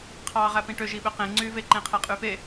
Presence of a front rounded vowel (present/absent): present